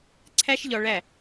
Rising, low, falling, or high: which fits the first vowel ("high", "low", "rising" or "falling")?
high